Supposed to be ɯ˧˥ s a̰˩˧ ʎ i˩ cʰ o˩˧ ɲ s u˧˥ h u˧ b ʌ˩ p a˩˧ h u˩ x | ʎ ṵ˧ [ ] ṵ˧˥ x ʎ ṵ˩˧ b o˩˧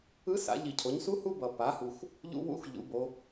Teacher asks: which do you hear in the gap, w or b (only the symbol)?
w